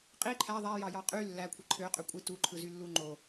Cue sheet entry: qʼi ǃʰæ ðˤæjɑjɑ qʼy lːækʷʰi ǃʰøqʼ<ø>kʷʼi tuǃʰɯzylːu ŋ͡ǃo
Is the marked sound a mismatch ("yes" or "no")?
no